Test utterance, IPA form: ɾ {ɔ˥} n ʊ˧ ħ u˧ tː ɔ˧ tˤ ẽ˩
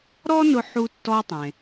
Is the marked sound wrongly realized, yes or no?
no